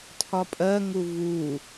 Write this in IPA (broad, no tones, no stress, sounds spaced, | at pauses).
tʰ ɒ pʼ ɜ ŋ u v u